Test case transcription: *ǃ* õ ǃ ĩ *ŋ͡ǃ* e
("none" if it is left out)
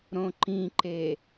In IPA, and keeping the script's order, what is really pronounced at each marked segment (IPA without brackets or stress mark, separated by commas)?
ɾ, ǃ